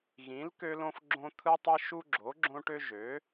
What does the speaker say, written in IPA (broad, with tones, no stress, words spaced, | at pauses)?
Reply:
ɣĩ˩˥l kø˦lõ˦f ɡ͡ǁõ˦t̪ʰɯ˦tˤɯ˦ ʃu˦ɡ͡ǁo˩˥ɡ͡ǁõ˦ʈø˦ ʒø˩˥